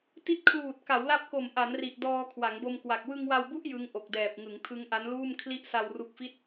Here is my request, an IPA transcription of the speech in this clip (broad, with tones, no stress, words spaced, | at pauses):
ti˦˥t̚kʰluː˨˩t̚ ka˩˦wla˦˥p̚ko˨˩m ʔa˩˦nri˨˩ʔdɔː˧ kʰwa˩˦ŋbo˧mkwa˨˩k̚ wɯ˧ŋwa˧wbu˦˥ʔ jɯ˦˥ŋ ʔo˨˩k̚dɛː˨˩p̚ŋɯ˩˦ŋ tʰɯ˦˥ŋʔa˦˥nluː˥˩m kʰli˥˩ʔ sa˧wru˦˥k̚fi˥˩t̚